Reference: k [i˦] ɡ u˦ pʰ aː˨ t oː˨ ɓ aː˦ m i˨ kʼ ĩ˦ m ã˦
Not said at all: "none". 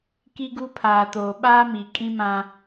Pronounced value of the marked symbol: i˦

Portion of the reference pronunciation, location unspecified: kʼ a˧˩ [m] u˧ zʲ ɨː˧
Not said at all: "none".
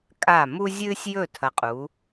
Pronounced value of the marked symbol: m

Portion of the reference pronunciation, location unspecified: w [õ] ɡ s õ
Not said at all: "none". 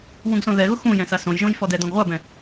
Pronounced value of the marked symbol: ũ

